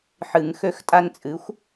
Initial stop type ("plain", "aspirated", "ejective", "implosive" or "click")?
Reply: ejective